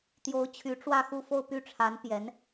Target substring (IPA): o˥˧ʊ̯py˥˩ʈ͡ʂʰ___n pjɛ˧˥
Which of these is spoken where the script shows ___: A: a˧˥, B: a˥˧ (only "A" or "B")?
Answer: A